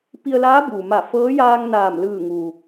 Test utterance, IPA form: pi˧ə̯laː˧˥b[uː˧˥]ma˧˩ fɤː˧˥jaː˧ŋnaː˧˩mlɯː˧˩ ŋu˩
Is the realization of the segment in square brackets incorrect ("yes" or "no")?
yes